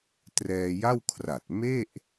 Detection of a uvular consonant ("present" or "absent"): absent